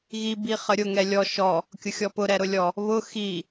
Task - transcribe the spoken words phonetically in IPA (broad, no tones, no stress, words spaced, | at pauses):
ɣi biχəɾʲʊ ŋɛlʲɔ ʃɔ | kʲʊxʲɔpʊ ɾɛɾʊlʲɔ | βʊ xi